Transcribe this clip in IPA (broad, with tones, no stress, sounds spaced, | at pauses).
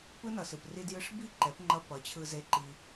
p ɯ˦ n ʌ˨ s ɯ˨ p r i˧ d j ɯ˧ ʂ b i˦˨ ǃ ɛ˨˦ p ŋ͡ǃ ʌ˧ p ʌ˨˦ t͡ɕʰ ɯ˧ z e˧ ǃ i˧